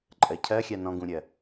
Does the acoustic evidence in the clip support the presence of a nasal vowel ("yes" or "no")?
yes